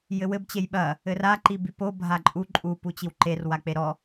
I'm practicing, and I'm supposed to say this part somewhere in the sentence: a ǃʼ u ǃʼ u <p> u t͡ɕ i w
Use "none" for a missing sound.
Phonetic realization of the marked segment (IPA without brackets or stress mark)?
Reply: p